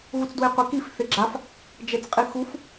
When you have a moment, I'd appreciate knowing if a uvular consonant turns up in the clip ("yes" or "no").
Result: yes